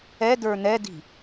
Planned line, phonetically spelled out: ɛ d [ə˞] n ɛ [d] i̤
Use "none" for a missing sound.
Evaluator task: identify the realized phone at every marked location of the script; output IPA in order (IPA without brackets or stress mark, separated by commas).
ə˞, d